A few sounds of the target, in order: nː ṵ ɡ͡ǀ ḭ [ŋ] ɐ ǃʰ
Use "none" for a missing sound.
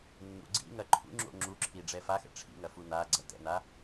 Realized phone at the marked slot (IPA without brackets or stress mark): ŋ